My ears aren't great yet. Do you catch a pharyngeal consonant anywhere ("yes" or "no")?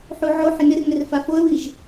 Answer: yes